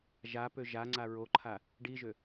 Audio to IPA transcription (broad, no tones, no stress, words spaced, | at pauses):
ʒapø ʒaŋ͡ǀa ɹoǃʰa | ɖiʒø